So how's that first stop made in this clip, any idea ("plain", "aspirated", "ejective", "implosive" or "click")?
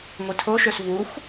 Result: aspirated